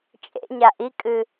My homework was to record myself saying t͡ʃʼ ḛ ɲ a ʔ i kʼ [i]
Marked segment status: incorrect: ɨ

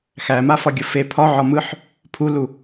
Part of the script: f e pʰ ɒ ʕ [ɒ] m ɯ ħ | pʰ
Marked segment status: correct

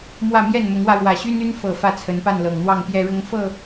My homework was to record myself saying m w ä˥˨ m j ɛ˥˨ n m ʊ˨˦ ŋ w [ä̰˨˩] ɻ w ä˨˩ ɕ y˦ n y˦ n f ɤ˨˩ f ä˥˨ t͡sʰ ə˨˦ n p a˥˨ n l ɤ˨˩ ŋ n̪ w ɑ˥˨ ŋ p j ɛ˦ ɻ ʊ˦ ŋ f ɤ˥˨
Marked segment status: incorrect: ä˧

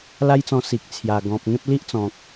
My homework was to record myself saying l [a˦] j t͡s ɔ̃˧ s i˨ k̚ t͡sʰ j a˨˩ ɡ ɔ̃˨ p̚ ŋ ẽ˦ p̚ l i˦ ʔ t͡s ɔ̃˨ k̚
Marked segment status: correct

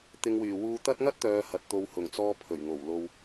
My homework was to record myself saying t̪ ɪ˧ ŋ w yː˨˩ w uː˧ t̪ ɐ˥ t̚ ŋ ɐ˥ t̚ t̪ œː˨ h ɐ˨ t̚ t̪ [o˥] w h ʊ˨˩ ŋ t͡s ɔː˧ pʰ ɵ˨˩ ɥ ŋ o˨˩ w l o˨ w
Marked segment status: incorrect: o˧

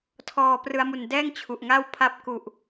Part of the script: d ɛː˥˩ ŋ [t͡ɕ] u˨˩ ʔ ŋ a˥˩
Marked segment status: incorrect: t͡ɕʰ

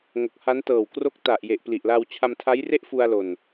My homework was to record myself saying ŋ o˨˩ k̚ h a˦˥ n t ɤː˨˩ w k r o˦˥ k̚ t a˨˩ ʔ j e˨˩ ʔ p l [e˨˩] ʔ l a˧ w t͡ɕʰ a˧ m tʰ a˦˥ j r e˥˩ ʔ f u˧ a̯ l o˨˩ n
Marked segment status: incorrect: i˨˩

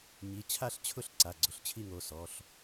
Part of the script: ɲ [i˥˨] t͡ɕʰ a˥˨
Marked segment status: incorrect: i˩˧˩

